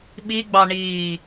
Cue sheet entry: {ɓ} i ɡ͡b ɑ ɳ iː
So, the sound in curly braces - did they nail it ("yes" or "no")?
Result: yes